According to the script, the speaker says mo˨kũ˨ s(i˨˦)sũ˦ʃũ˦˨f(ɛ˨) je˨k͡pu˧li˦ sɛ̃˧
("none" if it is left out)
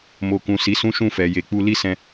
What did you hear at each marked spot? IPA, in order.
i˨˦, ɛ˨

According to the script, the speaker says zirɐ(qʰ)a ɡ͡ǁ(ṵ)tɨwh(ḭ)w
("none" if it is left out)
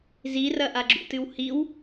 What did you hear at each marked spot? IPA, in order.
ʔ, ṵ, i

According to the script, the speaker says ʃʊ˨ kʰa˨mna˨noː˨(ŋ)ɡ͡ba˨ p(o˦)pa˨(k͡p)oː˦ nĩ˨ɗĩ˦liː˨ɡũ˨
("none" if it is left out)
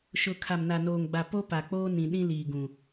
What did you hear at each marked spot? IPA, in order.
ŋ, o˦, k͡p

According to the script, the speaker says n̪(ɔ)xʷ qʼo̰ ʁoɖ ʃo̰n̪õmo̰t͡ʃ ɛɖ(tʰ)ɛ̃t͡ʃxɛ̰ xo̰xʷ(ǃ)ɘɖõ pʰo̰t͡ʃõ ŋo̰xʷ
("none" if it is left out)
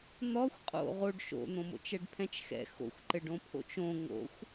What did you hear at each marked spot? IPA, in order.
ɔ, pʰ, ǃ

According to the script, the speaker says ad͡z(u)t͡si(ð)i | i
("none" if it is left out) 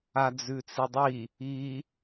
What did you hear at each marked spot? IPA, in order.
ʉ, dˤ

